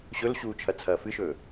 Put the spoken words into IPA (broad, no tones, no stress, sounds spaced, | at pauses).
ɕ ɵ l ɕ uː t͡ʃʰ ɐ t͡sʰ ɐː f ɨ ʃ ɵː